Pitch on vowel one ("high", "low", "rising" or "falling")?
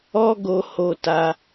high